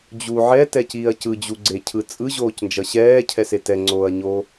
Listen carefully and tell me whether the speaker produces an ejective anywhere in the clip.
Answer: yes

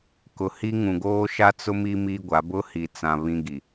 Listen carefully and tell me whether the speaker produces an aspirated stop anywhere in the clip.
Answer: no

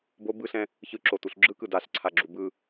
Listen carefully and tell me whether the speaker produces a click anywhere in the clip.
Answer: yes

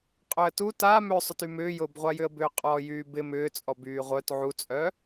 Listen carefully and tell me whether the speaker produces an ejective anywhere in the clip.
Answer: yes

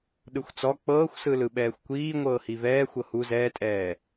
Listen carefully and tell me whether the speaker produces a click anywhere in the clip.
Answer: no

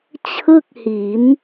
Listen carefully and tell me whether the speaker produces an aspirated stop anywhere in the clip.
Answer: yes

